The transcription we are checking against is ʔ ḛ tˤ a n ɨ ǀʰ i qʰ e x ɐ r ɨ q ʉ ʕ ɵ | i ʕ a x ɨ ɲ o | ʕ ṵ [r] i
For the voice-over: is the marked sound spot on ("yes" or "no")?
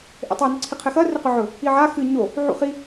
no